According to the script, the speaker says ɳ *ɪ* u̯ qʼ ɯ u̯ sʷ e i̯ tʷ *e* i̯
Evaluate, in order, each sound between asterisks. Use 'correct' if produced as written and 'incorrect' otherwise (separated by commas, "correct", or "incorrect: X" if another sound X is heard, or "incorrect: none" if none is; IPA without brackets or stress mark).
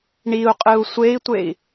incorrect: i, correct